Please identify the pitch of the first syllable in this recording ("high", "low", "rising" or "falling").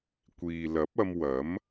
low